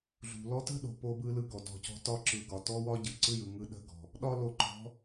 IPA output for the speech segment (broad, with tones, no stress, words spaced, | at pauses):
ɮṳ˩lɔ˧˥tə̤˥ɗo̤˩˧ po˧bɯ˧lɯ˧ ɡɔ˩dɔ̤˧cɔ̤˧˥ tɒ˧˥ǁɯ˩˧ɡɒ˩ tɔ˥wɒ˥ɟɯ˩ ǀɯ˥jɯ˩˧ ŋɯ˧ɗə̤˧˥ɡɔ̤˩ | ɗɒ˥lo˧ǃɔ̤˧˥